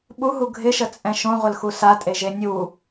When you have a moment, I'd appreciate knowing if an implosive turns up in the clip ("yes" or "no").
yes